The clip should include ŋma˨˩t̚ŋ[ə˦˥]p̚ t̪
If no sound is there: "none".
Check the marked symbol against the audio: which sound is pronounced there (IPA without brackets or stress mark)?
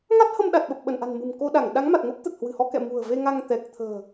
ə˦˥